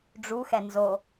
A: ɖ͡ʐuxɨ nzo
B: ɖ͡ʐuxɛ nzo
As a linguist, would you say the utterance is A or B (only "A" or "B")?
B